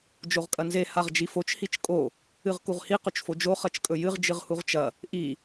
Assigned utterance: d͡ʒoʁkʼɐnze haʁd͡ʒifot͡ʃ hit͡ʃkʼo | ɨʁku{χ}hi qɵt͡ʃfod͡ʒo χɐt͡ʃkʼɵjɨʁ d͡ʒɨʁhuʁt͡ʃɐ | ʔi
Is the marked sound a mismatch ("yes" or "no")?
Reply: yes